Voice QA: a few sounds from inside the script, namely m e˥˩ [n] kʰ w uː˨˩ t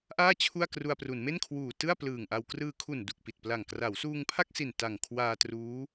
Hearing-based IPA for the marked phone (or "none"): n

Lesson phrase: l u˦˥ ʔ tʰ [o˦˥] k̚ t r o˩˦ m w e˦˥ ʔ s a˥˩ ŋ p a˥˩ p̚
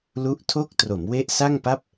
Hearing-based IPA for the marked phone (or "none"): o˥˩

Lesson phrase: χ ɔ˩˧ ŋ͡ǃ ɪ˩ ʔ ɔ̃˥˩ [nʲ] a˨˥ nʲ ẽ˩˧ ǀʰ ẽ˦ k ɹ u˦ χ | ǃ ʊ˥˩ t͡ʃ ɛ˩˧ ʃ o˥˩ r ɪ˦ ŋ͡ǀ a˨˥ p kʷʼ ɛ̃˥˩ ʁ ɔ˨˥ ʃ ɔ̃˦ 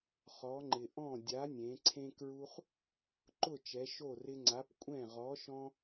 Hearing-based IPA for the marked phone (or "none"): dʲ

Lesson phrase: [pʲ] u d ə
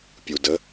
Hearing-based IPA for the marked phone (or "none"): pʲ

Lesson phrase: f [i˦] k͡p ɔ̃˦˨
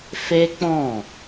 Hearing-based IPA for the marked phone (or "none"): e˦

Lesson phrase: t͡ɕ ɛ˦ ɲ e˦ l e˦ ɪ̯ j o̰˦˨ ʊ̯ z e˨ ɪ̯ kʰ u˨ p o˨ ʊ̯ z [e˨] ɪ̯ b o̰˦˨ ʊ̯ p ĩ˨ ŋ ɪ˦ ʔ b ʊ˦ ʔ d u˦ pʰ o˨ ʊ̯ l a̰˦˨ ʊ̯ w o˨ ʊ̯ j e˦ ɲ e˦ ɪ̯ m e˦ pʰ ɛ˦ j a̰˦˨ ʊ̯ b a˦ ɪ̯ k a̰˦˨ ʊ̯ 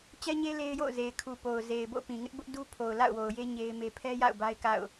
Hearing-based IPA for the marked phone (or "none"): e˨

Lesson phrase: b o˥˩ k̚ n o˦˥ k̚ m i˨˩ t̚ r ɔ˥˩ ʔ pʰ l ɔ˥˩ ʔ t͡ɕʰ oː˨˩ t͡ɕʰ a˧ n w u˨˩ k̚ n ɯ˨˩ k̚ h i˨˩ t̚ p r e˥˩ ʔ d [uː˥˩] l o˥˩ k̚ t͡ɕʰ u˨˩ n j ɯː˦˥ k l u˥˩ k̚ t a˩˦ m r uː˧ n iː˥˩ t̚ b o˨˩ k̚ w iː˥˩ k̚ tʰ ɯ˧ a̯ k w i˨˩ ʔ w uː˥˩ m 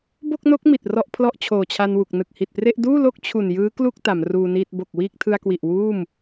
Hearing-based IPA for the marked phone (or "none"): uː˥˩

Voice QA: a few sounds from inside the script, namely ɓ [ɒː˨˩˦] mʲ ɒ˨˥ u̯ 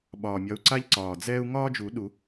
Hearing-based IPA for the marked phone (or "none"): ɒː˨˩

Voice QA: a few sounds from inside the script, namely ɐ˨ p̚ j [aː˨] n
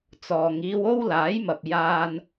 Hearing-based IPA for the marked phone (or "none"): aː˧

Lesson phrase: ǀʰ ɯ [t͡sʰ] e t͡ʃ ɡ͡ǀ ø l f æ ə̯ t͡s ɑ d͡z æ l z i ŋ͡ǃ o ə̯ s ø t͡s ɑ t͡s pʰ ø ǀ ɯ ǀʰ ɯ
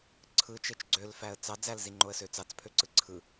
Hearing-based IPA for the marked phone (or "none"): t͡ʃ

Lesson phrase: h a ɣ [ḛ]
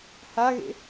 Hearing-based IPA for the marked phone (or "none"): ḛ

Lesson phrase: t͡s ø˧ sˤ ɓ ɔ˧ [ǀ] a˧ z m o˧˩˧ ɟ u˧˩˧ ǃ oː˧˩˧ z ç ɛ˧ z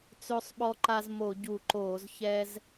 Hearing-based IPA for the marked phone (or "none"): ǃ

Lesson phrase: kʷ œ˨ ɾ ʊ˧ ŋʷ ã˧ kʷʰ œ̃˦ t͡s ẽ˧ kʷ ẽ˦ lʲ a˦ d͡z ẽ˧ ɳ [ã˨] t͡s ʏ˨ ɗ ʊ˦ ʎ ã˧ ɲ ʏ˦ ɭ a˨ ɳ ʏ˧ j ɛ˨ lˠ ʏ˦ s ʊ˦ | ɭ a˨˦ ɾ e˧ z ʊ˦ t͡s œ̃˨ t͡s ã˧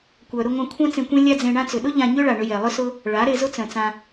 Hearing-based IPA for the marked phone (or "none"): ã˦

